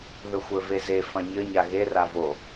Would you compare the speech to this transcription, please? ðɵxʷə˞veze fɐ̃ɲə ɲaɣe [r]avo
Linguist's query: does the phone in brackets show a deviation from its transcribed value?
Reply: no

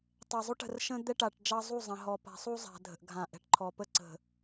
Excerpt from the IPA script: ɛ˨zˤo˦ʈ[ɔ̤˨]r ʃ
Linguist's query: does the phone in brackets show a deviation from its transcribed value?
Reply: yes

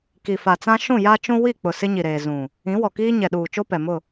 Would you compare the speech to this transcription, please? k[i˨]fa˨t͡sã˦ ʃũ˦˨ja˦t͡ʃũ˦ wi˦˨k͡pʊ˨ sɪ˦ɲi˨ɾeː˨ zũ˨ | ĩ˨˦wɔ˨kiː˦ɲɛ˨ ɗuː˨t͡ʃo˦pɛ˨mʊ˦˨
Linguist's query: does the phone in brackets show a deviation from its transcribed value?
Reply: no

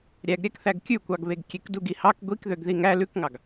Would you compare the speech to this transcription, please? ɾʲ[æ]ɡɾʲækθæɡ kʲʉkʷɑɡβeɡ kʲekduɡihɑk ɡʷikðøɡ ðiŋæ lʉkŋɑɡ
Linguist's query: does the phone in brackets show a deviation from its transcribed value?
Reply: no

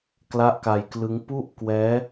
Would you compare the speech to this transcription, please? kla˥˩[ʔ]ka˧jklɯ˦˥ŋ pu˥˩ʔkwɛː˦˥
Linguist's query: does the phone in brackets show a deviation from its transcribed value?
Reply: no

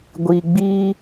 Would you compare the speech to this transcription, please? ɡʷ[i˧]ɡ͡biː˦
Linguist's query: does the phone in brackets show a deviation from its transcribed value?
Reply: no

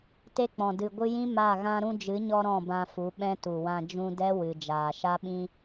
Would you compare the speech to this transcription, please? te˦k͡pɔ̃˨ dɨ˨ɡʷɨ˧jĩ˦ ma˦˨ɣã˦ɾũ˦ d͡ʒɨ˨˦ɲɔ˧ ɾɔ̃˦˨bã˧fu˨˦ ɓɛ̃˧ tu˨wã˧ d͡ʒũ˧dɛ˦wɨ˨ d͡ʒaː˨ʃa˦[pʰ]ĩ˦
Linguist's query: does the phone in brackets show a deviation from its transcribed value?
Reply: yes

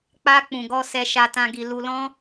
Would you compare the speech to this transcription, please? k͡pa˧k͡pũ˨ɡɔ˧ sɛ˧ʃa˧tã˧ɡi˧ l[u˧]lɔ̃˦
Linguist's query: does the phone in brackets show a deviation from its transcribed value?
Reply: no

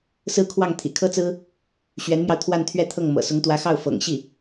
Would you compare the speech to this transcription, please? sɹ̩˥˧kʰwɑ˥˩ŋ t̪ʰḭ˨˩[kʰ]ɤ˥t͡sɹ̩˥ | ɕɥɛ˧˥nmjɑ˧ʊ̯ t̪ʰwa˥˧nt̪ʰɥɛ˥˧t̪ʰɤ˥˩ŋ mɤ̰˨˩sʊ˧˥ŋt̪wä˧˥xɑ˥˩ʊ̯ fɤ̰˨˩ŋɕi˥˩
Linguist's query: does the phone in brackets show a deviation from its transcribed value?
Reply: no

